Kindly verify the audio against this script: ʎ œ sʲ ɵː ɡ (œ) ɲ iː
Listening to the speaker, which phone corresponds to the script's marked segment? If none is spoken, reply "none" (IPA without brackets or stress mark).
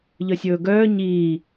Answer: œː